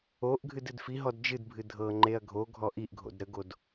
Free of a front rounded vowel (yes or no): yes